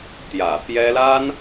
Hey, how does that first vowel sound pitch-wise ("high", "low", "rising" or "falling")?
low